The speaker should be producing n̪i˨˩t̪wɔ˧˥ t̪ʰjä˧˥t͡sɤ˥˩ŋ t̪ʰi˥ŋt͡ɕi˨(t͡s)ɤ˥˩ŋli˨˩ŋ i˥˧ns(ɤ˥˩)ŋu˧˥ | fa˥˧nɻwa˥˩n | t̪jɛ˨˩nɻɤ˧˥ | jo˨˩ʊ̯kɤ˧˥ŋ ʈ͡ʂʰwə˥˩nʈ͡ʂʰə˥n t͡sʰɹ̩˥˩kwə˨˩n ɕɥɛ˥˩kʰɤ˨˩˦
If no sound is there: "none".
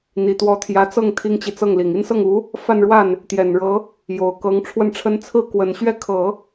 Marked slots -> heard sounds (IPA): t͡s, ɤ˥˩

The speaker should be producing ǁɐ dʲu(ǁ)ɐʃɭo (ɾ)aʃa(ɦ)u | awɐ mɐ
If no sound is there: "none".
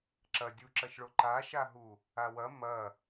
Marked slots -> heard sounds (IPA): ǁ, ǃ, ɦ

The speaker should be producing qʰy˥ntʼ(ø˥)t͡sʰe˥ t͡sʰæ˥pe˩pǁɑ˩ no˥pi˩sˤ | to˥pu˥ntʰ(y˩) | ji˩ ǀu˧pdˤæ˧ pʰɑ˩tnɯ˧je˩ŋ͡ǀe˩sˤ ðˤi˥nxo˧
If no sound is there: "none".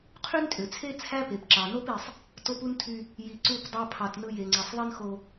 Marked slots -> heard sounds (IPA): ø˩, y˧

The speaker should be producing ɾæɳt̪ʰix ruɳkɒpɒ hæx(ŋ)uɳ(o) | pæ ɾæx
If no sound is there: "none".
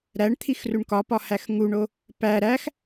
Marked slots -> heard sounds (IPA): ŋ, o

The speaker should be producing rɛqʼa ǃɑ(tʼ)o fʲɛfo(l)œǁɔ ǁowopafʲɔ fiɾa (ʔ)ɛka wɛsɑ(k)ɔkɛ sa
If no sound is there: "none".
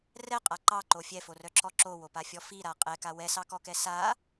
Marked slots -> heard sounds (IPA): ǃ, r, qʼ, k

